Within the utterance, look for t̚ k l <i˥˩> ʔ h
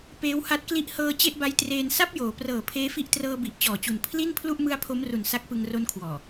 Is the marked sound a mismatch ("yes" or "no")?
no